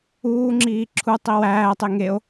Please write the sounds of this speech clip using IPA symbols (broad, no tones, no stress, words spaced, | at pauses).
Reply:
uːŋ͡ǁiː ǁʰu tˤiwæːtˤe ŋeo̯